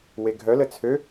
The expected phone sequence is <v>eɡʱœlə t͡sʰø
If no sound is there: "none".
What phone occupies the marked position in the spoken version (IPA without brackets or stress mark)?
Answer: w